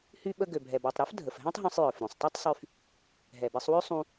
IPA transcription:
h y˧ ɓ ə˧ ɡ ø˩ bʱ ɛ˩ b œ˩ tˤ ɾ œ˥ f dʱ ə˩ f ɦ ɛ̃˥ tˤ ɦ õ˧ sˤ j œ˩ f ɾ ũ˩ sˤ tˤ y˥ tˤ sˤ y˧ f | ɦ ɛ˩ b e˧ sˤ w ø˥ sˤ ũ˧

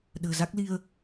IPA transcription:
ɗ ə̤ː˨˩ z a˦˥ k̚ l i˧ ə̯

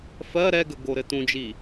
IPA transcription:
f ɜ ɾ ɛ ɡ ə ɡ o ɾ ɘ t ũ d͡ʒ i

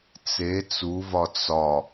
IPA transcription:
t͡s e t͡s u v ɒ t͡s ɒ

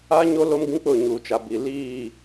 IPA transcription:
a˦ ɲ o˦ l o˦ m ɡ ĩ˦ k͡p ʊ˦˨ ɲ uː˨ t͡ʃ a˨ b i˨ l iː˦˨

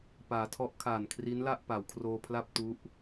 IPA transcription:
p aː˩˦ tʰ ɔ˦˥ ʔ kʰ aː˨˩ n kʰ r i˦˥ n l a˥˩ ʔ p a˩˦ w kʰ r oː˧ pʰ l a˥˩ p̚ t u˦˥ ʔ

